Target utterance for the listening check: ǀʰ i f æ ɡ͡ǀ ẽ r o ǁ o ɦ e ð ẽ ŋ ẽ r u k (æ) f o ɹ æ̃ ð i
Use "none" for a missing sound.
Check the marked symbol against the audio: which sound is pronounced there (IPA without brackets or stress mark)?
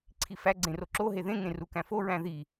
æ̃